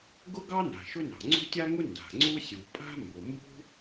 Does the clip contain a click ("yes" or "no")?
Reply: yes